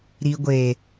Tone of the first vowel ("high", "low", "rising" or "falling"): low